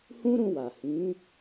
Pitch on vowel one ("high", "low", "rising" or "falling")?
high